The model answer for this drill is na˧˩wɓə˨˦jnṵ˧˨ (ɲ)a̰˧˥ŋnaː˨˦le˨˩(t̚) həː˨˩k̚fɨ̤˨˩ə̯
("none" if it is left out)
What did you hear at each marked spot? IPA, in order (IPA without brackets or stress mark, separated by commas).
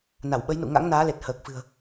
ŋ, t̚